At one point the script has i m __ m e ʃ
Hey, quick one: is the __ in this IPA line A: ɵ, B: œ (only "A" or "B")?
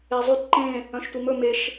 A